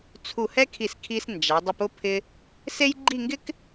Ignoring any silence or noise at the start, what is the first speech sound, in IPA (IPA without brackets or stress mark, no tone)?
t͡sʰ